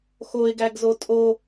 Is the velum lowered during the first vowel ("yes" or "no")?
no